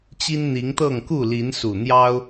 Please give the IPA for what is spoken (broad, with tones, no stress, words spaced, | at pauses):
t͡ɕi˦nn̪i˨˦ŋt̪ɤ˥˨ŋ ku˥˨li˨˦nsu˨˩n̪jɑ˦ʊ̯